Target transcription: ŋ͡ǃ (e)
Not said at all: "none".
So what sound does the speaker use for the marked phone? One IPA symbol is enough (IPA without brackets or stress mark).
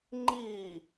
i